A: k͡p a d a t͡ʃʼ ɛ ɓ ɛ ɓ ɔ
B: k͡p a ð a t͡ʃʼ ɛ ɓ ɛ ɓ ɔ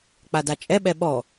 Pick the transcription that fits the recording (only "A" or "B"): A